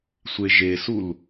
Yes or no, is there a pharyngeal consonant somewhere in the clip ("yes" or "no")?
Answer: no